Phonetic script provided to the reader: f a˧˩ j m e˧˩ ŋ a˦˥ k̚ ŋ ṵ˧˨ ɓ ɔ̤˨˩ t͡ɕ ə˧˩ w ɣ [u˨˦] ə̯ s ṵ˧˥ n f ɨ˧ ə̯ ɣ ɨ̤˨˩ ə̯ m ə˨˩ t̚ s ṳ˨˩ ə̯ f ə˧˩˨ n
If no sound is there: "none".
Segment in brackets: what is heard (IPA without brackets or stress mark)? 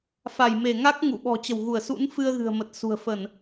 u˧˩